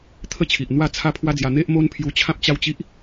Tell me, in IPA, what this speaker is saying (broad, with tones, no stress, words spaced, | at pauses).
t̪ʰə˦t͡ɕʰi˨ʔ n̪wa˥˧t͡sʰa˦pʰwa˦d͡zja˧ n̪e˦ʔmo˦npʰju˧ t͡ɕʰã˦p̚t͡ɕa˥˧wt͡ɕi˦ʔ